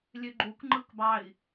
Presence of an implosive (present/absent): absent